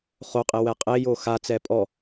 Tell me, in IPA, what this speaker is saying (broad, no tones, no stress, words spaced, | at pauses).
χoqʼe wɛqʼejo xat͡sɛ pʼɔ